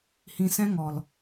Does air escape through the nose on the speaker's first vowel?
yes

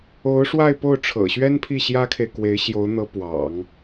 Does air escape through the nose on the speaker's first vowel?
no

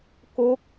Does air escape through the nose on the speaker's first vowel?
no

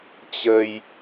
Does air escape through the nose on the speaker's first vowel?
no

